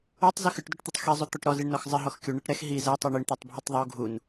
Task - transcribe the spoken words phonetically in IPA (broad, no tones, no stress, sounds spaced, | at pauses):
o tˤ z ɨ x ɨ ʈ d o ʈ t̪ i tˤ x i zˤ u t̪ ɔ ʈ ɾ ɔ z i ɳ n ɔ x zˤ ɨ ɦ ɔ x kʲ u ɳ ɛ ʈ ɾ ɛ x ɦ i z ɛ tˤ i ɳ i ɳ t̪ ɔ tˤ bʱ ɨ tˤ ðˤ u ɡʱ u n